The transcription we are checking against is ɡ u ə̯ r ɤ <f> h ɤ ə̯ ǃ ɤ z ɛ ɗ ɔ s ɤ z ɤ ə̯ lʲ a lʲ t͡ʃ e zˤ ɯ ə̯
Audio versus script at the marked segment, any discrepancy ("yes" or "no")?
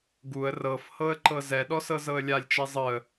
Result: no